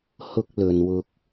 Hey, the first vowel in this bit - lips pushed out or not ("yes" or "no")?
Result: yes